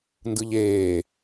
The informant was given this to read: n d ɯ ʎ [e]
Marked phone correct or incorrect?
incorrect